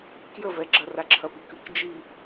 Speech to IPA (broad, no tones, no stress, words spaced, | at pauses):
kjəvɛɡ͡ǁɐ raǁʰɐpikɨk d͡ʒi